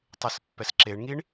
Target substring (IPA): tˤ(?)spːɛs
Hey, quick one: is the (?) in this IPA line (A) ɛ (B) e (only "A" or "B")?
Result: B